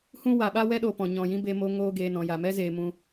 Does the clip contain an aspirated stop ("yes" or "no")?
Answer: no